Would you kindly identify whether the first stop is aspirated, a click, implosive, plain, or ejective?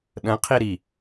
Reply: implosive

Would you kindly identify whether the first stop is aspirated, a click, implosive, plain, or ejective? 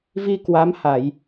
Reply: plain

